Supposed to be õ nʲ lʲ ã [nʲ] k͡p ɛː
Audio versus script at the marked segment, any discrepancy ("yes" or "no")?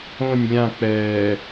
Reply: yes